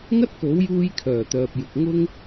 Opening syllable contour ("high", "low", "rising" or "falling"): high